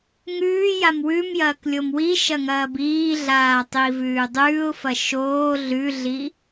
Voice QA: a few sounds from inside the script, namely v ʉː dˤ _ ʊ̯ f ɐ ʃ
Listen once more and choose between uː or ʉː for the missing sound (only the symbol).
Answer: ʉː